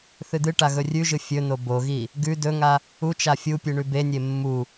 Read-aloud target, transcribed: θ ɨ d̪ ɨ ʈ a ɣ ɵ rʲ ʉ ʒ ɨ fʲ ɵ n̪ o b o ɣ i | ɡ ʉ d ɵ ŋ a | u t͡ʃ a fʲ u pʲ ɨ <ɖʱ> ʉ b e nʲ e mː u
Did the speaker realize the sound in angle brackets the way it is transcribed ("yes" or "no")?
no